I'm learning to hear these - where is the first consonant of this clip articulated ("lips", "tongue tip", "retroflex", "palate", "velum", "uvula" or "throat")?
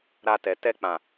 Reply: tongue tip